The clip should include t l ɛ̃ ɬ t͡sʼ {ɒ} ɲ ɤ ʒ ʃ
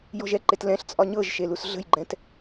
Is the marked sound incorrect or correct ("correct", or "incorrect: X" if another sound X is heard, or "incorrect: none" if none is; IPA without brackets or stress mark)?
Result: correct